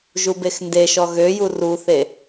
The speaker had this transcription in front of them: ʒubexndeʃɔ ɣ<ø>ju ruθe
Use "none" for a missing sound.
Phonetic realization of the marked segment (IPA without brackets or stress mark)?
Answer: ø